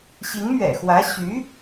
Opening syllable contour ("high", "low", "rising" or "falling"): rising